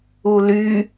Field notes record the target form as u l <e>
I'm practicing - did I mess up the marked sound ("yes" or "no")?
yes